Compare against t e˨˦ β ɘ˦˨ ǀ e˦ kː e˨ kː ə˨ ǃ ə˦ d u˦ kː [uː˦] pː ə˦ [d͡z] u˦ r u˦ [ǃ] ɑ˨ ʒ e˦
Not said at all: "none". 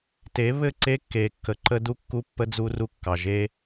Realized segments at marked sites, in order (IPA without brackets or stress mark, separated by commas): u˦, d͡z, kː